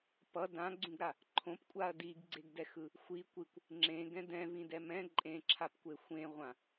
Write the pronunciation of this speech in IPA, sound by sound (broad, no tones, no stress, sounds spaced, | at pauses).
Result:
p ʌ d ã ɡ͡ǀ ũ ɡ ɾ a | ǃʰ õ p kʷʼ a ɐ̯ d i ɡ ɡ͡ǀ e ɡ d ɛ x ɯ | xʷ i kʷ i kʷ | ŋ͡ǁ ẽ ɡ ɛ̃ d ɛ̃ v ĩ d ɛ m ɛ̃ ǃʼ ẽ ǁʰ a p kʷ e xʷ ẽ ʁʷ ã